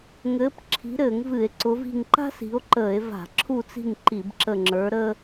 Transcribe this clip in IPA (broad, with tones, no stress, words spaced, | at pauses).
ŋɘː˨˦pǁʰi̤˨˦ɾɘː˧˩˧ŋ vɨ˧˩˧e̯ǀʊ˨˦vi̤˦˨ŋ ǃa̤˥ si̤˨˦o̯ǃəː˧˩˧e̯ va̤˧˩˧ ǁʰu˦˨t͡si̤˦˨ŋ ǃi˧˩˧bǁə˦˨ ŋ͡ǁə˞˨˦ ɾə˥